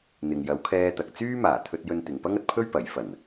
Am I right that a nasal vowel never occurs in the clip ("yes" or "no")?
yes